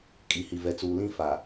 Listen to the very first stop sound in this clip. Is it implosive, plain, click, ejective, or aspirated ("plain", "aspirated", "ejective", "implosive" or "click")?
ejective